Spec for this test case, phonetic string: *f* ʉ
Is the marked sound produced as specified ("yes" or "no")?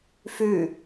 yes